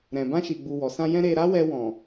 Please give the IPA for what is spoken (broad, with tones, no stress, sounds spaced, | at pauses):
ɾ ɛ̃˨ b ã˧ ʃ i˨ ɡ͡b u˨ w ɔ˨ s ã˧ j ɛ̃˦ ɾ e˧ ɾ a˦ w ɛ˧ w ɔ̃˨